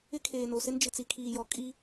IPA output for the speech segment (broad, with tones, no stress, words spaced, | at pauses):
ɪ˦kʰeː˨no˨sɪ˦n d͡ʒɪ˨t͡si˨kʰiː˨jɔ˨ kʼi˦